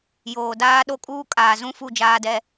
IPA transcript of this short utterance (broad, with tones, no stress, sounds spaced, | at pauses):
j oː˨ d aː˦ ɗ o˦ kʼ uː˦ kʼ aː˨ z ũ˦ f u˦˨ d͡ʒ aː˦ d ɛ˦